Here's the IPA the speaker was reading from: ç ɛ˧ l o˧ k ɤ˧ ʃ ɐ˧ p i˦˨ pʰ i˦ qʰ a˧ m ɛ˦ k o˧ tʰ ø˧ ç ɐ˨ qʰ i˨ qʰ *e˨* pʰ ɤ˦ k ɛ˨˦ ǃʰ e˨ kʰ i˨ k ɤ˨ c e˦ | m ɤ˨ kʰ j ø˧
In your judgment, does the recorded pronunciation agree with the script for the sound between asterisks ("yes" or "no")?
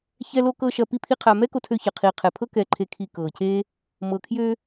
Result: no